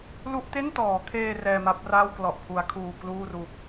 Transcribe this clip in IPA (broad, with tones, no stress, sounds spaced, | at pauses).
l u˥˩ ʔ t e˥˩ n t ɔː˩˦ kʰ eː˧ r ɛː˧ m a˦˥ p̚ r aː˥˩ w k l ɔ˨˩ ʔ pʰ u˩˦ a̯ kʰ uː˨˩ k l uː˥˩ r u˨˩ k̚